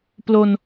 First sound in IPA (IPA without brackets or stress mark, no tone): p